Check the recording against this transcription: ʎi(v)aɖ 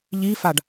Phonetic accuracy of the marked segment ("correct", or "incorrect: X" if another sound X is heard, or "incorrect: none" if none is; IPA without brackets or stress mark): incorrect: f